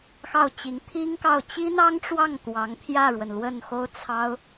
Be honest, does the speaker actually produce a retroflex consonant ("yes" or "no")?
yes